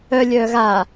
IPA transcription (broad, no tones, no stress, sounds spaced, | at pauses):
œ lʲ œː ɣ a